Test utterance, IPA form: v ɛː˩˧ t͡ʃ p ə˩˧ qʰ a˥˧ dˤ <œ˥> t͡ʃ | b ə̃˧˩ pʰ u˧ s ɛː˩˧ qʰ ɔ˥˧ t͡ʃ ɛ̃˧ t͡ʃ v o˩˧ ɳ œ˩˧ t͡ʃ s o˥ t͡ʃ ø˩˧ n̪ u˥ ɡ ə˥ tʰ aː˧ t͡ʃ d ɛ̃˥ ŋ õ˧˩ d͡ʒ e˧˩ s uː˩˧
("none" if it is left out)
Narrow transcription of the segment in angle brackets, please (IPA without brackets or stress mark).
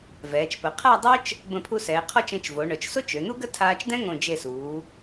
œ˥